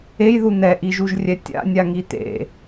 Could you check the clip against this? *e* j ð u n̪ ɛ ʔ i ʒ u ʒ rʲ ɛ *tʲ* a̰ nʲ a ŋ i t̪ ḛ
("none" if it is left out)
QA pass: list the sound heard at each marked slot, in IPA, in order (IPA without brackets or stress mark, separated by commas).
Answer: e, tʲ